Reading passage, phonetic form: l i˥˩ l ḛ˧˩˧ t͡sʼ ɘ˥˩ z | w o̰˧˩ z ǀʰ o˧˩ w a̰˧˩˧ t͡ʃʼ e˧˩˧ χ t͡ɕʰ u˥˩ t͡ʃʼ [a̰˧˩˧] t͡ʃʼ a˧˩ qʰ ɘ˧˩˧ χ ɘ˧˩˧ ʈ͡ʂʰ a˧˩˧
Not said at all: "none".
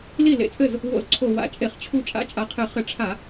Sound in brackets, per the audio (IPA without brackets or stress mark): a̰˥˩